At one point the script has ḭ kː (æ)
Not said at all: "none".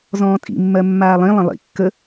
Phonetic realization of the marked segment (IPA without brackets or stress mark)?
ə